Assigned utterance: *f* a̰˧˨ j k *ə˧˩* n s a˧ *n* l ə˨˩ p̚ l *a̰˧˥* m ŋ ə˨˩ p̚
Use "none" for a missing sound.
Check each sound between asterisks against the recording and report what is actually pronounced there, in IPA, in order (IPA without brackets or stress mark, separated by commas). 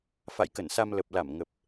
f, ə˧˩, m, a˧˩